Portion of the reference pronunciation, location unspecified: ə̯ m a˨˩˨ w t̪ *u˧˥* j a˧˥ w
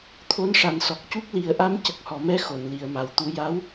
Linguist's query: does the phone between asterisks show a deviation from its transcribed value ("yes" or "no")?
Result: no